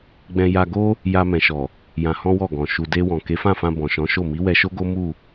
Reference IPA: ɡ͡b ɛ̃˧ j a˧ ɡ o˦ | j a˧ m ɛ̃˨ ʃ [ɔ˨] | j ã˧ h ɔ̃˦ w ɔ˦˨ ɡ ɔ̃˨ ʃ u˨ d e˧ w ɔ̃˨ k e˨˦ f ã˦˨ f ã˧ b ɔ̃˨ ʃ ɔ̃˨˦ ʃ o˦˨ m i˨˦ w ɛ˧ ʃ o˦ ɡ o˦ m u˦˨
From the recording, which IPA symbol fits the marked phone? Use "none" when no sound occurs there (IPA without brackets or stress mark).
ɔ˨